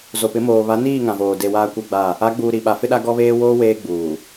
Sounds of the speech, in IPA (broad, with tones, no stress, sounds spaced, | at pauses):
z o˨ p ɪ˨˦ m oː˨ β a˨˦ n iː˦˨ ŋ ã˨ v oː˨ d e˨ w aː˦ kʷ ɛ˦ ɡ͡b a˦˨ | a˨˦ ɡ͡b uː˨ ɾ i˨ ɓ a˨ f ɪ˦ ɗ a˦ ɡ ɔ˦ β eː˦ w oː˦ w eː˦ ɡ͡b uː˨